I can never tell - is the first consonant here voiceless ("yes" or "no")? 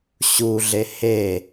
yes